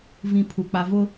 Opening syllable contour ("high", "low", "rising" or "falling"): low